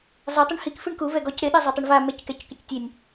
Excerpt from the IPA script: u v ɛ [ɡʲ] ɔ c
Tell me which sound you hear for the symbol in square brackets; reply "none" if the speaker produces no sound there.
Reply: ɡ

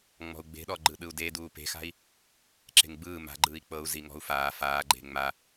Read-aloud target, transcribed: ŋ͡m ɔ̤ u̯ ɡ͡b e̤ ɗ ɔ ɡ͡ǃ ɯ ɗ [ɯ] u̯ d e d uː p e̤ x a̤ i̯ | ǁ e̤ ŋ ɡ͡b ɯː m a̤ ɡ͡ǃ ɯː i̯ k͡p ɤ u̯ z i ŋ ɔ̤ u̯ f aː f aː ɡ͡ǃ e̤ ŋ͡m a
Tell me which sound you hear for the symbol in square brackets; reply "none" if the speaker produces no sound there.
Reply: ɯ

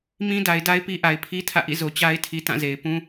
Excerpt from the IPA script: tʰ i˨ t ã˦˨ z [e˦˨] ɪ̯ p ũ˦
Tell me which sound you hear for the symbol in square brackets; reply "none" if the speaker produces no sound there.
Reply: e˨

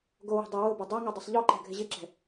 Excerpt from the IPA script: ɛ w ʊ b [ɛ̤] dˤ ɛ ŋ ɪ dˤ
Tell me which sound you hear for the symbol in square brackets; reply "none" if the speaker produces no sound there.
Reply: ɛ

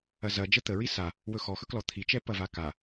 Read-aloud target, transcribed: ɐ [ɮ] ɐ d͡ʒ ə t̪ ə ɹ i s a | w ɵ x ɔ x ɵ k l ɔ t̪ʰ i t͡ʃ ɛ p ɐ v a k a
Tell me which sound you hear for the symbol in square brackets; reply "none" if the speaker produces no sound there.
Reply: z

